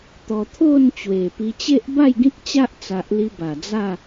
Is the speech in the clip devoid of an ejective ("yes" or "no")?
yes